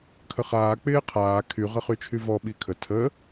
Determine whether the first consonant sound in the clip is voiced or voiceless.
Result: voiceless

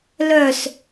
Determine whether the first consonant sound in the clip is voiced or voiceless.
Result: voiced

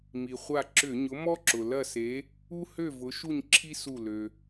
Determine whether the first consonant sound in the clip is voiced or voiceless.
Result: voiced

